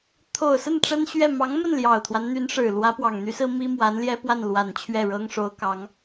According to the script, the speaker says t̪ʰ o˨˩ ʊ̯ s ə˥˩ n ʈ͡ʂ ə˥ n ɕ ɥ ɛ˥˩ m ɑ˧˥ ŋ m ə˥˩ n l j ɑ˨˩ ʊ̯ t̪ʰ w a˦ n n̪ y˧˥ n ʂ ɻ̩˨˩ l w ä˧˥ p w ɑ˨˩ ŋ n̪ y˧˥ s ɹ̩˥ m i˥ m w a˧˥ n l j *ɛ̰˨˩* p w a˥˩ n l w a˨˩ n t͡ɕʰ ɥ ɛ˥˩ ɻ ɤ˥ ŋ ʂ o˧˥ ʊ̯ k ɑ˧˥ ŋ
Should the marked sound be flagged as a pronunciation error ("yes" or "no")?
yes